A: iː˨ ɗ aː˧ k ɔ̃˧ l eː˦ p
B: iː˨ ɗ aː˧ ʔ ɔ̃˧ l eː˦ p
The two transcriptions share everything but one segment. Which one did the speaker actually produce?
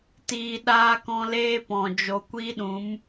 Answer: A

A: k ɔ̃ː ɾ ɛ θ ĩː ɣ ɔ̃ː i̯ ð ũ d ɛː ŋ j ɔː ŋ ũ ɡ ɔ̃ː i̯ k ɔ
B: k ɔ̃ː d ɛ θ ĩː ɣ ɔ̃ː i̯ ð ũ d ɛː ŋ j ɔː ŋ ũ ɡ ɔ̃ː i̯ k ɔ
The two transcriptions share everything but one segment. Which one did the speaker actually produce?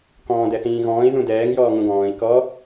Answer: B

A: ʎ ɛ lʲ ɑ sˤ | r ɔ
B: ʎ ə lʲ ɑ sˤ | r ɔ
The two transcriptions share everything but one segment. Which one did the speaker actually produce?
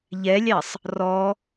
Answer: A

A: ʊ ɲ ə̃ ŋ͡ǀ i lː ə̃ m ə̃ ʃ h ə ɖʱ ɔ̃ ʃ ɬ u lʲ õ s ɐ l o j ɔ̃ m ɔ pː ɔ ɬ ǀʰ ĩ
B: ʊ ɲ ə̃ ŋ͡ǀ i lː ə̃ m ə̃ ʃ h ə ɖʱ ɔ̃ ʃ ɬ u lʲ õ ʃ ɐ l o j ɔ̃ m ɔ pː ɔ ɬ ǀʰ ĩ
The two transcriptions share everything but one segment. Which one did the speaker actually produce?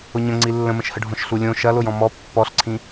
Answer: B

